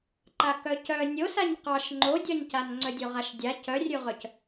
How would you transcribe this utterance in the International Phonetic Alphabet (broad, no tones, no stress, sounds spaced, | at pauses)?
ǃ a k œ c œ nʲ o s a ɲ q ɑ ʃ ŋ͡ǃ o dʲ ɑ ɲ c a n ŋ͡ǀ œ dʲ o ʁ a ʃ dʲ a c œ rʲ ʉ ʁ œ c